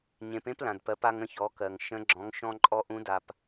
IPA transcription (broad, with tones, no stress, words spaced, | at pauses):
ɲẽ˩˧pẽ˥plã˩dpɜ˩˧p a˧ŋə̃˧çɔ˩˧kɜ˩ŋ ʃə̃˧˥ ɡ͡ǁɔ̃˩˧ŋʃɔ̃˧ǃʼɔ˧ ʔũ˧˥da˧p